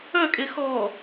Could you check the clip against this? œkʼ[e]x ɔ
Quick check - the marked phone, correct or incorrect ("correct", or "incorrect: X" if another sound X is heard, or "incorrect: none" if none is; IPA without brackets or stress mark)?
correct